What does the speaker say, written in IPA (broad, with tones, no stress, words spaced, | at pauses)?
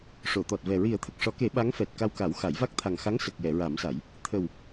ʂo˨˩˨t̪ɔ˨˩t̚vɛ˨˩ ɹi˨˩˦ə̯t̪ʰə˨˩k̚ʂɔ˨˩˦ke˨˩˦ ɓa˧˥ŋfɛ˨˩t̚ ka˧wka˨˩˦w xa˨˩˦jva˦˥k̚ t̪ʰa˨˩ŋxa˧˥ŋ sə˨˩k̚jɛ˨˩˨ɹa˨˩˦msa˨˩˦j | t̪ʰə˨˩w